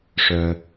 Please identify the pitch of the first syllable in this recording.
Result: high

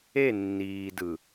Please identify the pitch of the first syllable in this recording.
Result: falling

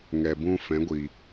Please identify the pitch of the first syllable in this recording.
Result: low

